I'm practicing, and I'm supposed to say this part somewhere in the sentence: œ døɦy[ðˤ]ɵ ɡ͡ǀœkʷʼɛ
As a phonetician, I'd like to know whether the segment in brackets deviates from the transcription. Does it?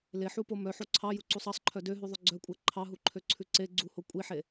no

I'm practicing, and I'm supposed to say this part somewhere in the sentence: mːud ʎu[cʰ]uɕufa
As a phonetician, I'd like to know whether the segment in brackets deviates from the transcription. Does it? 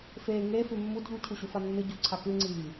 no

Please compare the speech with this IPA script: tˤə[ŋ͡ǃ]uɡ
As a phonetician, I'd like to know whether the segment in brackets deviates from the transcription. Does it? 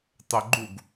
yes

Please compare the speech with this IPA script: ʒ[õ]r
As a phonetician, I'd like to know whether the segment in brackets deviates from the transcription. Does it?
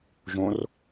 no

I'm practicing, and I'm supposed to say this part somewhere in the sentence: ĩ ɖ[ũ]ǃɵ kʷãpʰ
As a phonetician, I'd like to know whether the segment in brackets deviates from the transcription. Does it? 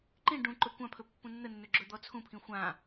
no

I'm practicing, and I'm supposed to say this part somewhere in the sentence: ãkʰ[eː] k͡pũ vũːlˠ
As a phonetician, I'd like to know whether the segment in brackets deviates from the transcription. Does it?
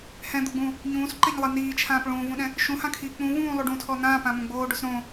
yes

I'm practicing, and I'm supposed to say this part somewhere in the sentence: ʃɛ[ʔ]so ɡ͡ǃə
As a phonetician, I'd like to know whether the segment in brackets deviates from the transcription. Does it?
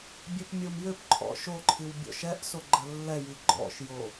no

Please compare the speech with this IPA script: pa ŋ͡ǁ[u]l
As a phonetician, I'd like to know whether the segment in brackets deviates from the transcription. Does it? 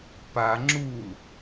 no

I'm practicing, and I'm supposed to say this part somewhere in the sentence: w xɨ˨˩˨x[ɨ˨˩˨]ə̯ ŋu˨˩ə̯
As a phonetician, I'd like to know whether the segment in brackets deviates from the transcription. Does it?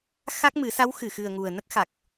yes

